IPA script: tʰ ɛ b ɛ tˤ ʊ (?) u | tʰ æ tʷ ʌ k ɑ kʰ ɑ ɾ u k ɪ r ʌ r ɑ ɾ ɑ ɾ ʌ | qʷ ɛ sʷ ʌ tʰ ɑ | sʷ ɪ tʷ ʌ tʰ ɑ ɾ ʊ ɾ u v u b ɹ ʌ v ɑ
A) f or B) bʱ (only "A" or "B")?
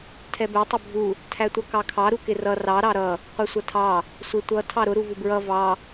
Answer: B